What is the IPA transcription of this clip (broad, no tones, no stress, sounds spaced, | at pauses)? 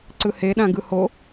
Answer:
ǀ ɯ h e ɗ ã ɡ ɯ h o